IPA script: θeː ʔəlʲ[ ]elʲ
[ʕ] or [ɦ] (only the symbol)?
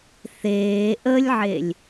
ʕ